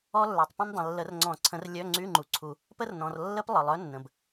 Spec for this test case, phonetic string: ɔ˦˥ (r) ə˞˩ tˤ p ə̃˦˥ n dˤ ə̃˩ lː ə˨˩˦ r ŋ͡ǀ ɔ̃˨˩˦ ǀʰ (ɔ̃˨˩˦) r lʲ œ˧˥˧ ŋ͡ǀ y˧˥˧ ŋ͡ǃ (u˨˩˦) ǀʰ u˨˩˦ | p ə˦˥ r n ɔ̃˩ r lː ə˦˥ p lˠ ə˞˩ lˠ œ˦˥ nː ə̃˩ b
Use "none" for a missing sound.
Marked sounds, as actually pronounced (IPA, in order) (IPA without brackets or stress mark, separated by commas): lː, ə̃˨˩˦, u˩